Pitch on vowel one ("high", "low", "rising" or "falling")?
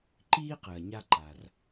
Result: high